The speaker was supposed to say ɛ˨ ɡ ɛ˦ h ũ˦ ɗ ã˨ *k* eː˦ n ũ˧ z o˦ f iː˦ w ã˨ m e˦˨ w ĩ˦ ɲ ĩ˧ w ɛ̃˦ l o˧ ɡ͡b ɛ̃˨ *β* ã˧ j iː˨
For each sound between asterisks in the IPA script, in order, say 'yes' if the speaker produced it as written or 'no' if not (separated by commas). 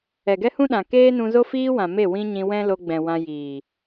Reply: yes, no